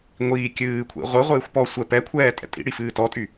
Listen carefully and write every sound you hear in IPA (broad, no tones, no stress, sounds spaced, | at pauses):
ŋʷ iː kʲ ɨː kʷʰ ḭ ʁʷ ɯ ʁʷ ɨː xʷ p ɔ sʷ ɛ p ɛ kʷʰ ɛː tʼ ɛ̰ tʼ ḭ ɽ i f ɨː t ɔ tʼ y